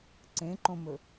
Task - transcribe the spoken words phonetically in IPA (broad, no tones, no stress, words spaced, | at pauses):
ǀẽǃõmɵ